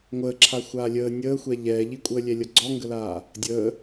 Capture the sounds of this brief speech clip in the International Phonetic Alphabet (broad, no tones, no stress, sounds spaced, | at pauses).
ŋʷ əː ǁʰ a xʷ aː lʲ əː nʲ əː xʷ ɛ ʎ ɛː ʎ i kʷʼ əː lʲ ɛ lʲ ʌ ɡ͡ǀ ɔ ŋ ɡ ə l aː | dʲ əː